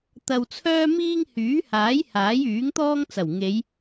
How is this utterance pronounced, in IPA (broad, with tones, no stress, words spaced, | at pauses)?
t̪ɐ˧wt͡sʰœː˥miː˥ŋ hyː˨˥haː˨˥j haː˨˥jyː˨˥ŋt̪ɔː˥ŋ t͡sɐ˨˩w ŋe˨˧j